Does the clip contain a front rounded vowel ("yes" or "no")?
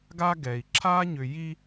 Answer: yes